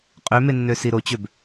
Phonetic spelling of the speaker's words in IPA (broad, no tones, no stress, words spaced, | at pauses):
qʼømenːøsi ɾot͡ɕøb